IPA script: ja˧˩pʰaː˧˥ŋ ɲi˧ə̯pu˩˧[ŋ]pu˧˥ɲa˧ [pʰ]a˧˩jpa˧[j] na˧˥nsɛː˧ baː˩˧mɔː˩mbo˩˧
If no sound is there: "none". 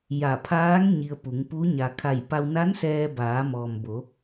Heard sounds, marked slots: ŋ, kʰ, w

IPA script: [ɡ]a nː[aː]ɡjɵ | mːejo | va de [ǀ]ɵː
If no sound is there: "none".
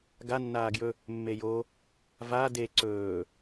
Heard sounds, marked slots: ɡ, aː, ǀ

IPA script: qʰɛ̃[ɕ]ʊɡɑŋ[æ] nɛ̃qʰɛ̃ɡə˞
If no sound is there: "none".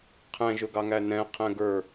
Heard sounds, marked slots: ʒ, æ

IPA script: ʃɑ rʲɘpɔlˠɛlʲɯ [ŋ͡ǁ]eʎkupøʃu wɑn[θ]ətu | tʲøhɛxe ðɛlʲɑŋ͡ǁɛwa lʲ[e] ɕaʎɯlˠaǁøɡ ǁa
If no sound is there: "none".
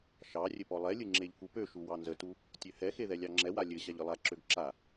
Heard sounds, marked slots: ŋ͡ǁ, z, ɘ

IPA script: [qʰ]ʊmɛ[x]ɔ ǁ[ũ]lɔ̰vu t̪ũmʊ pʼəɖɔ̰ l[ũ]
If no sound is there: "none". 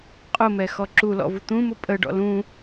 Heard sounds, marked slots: qʼ, x, u, ũ

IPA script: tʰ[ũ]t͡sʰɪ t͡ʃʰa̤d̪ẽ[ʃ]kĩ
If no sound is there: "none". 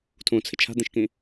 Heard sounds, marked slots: ũ, ʃ

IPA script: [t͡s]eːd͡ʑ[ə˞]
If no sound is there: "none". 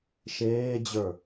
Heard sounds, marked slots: ʃ, ə˞

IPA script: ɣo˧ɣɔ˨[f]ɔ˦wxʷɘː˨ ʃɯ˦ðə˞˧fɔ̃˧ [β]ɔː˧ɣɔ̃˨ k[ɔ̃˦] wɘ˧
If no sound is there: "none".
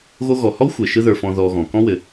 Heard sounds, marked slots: h, ð, ɔ̃˦

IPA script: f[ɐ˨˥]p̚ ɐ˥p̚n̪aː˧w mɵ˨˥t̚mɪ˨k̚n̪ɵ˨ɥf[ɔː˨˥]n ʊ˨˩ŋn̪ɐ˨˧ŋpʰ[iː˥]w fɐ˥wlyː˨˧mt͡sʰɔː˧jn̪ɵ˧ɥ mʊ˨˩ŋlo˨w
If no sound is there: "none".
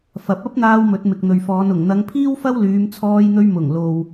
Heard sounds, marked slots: ɐ˨, ɔː˨˧, iː˥

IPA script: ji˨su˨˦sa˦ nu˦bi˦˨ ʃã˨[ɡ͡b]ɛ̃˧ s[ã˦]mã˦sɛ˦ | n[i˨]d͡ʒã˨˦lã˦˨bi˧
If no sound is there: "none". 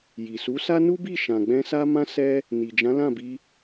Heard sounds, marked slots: ɡ͡b, a˦, i˨

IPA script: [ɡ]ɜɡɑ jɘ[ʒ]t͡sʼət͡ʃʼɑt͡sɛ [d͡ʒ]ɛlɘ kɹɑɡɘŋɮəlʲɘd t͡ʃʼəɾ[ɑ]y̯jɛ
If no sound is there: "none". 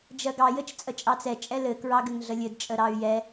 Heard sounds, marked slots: d͡ʒ, t͡ʃ, t͡ʃʼ, ɑ

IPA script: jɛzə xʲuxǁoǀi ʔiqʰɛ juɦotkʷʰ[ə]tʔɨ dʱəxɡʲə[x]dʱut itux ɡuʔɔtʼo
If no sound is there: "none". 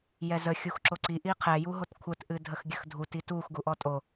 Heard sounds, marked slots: ə, x

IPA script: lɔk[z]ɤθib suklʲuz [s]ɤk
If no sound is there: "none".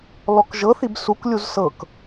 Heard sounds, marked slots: ʒ, s

